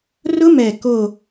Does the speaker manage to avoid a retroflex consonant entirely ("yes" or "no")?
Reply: yes